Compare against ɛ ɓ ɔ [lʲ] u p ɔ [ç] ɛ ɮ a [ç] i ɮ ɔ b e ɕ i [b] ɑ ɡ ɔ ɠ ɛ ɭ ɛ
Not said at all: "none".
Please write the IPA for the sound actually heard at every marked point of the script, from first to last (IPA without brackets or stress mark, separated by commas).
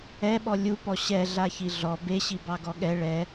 lʲ, ɕ, ç, b